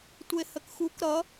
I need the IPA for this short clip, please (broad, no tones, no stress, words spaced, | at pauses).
tʷehəkxuk ɾʌ